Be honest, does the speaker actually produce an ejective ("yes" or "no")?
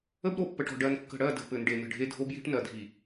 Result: no